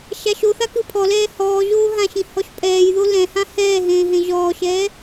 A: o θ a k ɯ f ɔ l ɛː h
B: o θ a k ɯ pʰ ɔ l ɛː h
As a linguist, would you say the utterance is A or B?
B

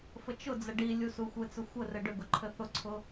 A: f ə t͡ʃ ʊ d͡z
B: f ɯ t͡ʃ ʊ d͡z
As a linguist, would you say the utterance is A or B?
A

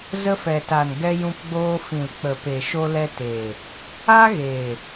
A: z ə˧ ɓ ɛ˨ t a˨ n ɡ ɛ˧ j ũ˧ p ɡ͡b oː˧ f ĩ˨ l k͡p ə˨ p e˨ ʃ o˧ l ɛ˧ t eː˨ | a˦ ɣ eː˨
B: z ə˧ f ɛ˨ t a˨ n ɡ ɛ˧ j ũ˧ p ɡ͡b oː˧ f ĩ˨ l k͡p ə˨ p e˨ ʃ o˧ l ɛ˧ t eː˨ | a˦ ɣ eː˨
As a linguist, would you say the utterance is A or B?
B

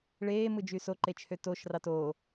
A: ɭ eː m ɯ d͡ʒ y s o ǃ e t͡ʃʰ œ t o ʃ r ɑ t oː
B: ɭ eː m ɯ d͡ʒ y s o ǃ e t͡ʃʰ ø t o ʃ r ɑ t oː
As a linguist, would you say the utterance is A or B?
B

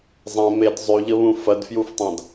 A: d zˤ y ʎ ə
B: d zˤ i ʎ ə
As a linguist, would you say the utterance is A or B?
A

